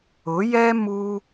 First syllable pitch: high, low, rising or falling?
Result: rising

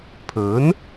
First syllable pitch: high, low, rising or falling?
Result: rising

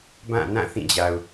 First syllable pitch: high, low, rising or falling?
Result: falling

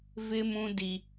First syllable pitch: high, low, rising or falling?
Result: high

